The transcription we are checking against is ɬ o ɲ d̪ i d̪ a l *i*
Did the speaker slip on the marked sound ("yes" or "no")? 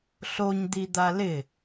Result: yes